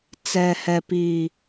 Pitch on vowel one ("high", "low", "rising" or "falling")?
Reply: low